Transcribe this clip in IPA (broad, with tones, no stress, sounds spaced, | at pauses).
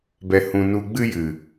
b ɛ˨ h ũ˨ n u˧ ɡ͡b ɨ˧ j ɨ˨